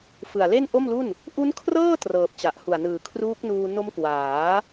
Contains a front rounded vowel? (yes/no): no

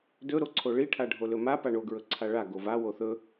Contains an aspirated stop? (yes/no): yes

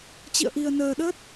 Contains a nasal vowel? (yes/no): no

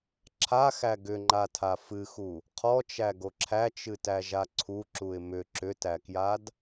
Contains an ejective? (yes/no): no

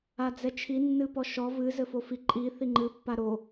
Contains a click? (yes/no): yes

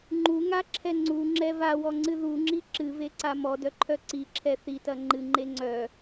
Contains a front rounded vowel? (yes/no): yes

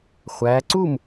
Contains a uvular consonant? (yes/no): yes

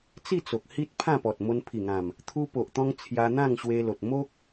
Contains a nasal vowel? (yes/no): yes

